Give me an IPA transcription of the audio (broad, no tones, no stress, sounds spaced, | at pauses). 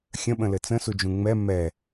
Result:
xʲ ə̃ ɓ ə̃ l ɘ t͡s ə̃ s u d͡ʒ ũ ŋ͡m ɛ m ɛ